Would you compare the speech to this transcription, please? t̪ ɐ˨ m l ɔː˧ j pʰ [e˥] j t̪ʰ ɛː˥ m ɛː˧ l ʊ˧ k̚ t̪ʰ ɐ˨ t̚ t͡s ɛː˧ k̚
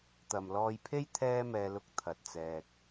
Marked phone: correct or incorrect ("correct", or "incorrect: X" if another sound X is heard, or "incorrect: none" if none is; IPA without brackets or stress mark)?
correct